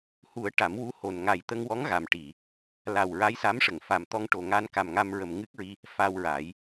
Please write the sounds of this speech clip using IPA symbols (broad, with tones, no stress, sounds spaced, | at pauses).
h u˨˩˦ ə̯ ʈ a˨˩˦ m w u˧˥ h o˨˩ n ŋ a˨˩ j t̪ ə˧ ŋ w ɔ˧˥ ŋ ɣ a˨˩ m ʈ i˨˩˨ | l a˨˩ w ɹ a˧˥ j s a˧˥ m ʂ ə˨˩˨ ŋ f a˨˩ m t̪ ɔ˧ ŋ ʈ o˨˩ ŋ a˧ n k a˨˩ m ŋ a˧ m ɹ ə˨˩ m ŋ ɨ˦˥ k̚ ɹ i˧ | f a˧ w ɹ a˨˩˦ j